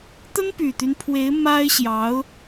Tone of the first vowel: high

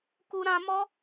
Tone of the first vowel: high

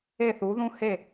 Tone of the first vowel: falling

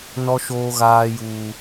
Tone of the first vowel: high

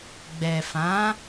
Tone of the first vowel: low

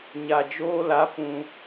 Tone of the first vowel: low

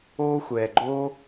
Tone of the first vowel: high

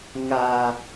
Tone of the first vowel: low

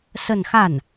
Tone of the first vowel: falling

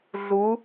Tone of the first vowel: rising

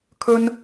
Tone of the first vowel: high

